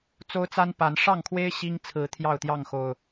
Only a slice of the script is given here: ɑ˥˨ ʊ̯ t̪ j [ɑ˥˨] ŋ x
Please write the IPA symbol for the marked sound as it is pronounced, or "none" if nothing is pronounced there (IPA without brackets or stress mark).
ɑ˥˨